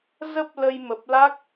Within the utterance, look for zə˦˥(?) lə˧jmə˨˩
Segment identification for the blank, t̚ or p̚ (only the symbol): p̚